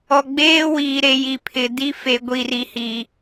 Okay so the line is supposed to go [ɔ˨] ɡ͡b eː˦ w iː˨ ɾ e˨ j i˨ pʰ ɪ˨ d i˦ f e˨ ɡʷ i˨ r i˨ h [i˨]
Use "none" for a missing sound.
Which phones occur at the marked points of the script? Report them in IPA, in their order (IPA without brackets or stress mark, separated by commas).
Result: ɔ˨, i˨